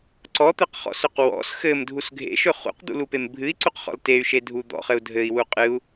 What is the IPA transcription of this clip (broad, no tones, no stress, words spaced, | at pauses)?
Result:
ǀɔt̪ɘqχɔ̰sɵq wɔ̰s xɘmdʱus ɡʱḛʃɵ χṵqd̪ṵlupem bʱɨi̯ǀuqχɔ̰l tey̯ʃedʱu d̪ɔ̰χɘu̯ dʱɘi̯wu qʼɨu̯